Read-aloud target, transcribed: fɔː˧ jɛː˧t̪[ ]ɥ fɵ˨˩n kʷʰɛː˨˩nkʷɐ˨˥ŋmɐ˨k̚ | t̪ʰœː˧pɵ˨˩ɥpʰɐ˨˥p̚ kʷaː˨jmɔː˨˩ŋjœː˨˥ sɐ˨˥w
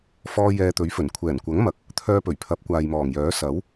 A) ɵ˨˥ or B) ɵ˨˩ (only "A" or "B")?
A